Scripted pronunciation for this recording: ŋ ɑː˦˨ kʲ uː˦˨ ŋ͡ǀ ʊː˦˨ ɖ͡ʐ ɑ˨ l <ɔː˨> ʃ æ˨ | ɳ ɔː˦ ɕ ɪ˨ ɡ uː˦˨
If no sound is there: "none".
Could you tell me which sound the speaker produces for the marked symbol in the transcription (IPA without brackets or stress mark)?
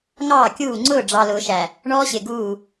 ʊː˨